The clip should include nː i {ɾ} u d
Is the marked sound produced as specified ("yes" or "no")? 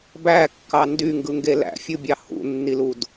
no